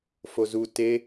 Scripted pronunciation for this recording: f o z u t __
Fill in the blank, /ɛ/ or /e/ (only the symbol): e